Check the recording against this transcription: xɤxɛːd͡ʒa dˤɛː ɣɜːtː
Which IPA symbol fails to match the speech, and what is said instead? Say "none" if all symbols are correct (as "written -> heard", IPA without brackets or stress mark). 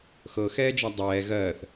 tː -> θ